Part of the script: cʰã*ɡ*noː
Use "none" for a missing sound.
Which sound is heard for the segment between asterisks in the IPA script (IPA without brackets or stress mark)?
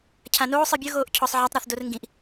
none